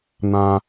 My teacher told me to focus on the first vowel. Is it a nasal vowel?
yes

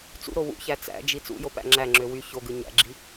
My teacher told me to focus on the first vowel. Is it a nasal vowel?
no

